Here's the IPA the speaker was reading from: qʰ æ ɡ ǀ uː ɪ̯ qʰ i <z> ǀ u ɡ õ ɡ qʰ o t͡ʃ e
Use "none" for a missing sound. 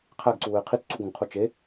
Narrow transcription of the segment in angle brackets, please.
t͡s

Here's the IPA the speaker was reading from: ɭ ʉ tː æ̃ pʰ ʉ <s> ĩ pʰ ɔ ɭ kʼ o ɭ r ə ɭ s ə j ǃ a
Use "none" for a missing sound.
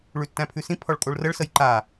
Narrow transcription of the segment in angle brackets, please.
s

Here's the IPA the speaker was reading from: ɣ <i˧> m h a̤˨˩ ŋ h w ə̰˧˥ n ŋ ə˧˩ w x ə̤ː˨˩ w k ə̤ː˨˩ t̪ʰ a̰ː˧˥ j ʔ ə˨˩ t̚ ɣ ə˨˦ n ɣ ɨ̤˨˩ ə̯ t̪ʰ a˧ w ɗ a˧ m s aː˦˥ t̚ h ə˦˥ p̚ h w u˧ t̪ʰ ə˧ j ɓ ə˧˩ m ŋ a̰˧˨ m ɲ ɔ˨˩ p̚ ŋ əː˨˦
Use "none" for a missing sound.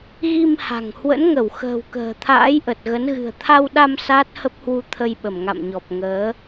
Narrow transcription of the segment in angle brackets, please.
i˧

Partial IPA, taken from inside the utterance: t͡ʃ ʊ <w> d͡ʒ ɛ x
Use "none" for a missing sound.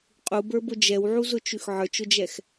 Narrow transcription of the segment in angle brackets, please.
none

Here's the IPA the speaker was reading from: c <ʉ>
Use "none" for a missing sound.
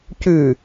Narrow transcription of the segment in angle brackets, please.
ʉ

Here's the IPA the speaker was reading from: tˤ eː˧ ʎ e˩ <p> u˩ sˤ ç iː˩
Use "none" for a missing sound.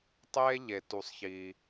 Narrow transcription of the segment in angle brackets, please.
t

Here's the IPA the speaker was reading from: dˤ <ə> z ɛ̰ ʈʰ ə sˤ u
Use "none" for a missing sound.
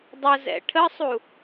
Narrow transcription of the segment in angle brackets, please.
ə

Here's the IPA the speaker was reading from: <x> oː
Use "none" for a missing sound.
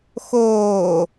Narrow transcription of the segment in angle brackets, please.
x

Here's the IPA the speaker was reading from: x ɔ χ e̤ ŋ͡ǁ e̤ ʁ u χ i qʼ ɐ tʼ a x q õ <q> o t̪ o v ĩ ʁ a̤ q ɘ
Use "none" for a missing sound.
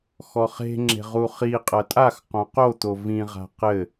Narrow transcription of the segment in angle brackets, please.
q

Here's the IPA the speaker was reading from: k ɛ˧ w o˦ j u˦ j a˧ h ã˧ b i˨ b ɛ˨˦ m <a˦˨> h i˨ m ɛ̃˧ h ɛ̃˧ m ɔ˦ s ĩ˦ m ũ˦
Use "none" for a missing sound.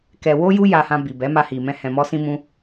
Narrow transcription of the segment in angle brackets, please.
a˧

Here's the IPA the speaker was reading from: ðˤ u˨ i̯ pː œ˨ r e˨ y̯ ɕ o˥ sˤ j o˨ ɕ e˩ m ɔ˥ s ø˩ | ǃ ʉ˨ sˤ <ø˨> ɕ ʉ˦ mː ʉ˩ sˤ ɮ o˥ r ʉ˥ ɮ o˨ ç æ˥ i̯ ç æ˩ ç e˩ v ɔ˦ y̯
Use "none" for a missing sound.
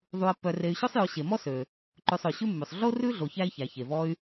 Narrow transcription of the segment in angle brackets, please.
ø˩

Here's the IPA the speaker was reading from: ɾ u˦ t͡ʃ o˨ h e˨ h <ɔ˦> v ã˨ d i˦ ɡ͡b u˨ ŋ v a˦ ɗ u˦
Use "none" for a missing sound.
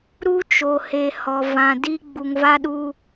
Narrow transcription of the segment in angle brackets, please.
ɔ˨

